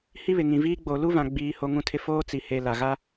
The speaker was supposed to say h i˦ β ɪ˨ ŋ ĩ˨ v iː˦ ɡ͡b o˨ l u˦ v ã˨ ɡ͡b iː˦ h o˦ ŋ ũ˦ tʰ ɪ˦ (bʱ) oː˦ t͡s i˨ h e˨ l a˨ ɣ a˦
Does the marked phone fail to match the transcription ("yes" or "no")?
yes